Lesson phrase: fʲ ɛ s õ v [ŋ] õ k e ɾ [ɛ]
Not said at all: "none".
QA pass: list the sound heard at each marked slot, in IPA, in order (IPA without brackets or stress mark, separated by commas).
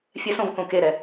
k, ɛ